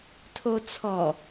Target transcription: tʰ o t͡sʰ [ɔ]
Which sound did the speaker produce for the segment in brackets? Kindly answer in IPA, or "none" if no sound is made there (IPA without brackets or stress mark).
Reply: ɔ